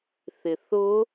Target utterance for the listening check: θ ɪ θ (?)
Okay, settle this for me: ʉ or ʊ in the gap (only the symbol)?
ʊ